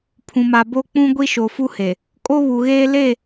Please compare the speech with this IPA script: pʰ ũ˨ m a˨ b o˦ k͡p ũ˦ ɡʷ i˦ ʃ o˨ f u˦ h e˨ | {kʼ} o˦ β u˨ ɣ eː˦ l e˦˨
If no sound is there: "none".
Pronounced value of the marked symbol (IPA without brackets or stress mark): kʼ